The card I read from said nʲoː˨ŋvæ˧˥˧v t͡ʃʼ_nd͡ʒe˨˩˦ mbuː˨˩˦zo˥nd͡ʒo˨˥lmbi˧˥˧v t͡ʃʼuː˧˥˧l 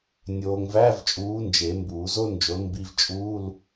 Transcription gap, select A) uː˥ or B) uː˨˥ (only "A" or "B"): B